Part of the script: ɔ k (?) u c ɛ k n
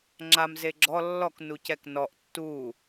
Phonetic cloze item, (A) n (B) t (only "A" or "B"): A